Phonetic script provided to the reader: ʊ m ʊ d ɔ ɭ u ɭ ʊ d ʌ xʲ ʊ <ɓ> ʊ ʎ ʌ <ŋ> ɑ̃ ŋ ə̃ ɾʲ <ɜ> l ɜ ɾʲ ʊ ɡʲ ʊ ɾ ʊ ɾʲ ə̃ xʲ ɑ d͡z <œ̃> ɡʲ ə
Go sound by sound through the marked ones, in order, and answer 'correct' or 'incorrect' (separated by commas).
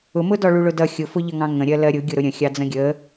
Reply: incorrect, correct, correct, incorrect